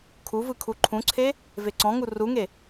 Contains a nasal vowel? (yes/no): yes